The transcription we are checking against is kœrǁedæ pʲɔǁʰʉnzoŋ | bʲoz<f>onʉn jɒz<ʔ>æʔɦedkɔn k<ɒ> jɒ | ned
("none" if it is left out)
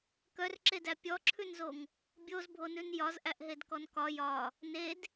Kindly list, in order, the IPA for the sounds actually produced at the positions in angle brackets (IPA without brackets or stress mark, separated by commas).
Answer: bʱ, ʔ, ɒ